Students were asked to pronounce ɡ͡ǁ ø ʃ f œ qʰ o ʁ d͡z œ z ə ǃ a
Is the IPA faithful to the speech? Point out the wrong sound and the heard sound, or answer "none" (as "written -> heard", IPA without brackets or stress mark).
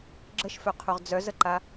ø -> ə